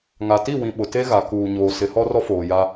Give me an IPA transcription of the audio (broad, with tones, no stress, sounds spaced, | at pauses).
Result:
ŋ a˨ t i˦˨ w ĩ˨ ɓ ʊ˨ t e˦ ɣ a˨ k uː˨ ɲ oː˨ s ɪ˨˦ h ɔ˦ r ɔ˦ f oː˨ j a˦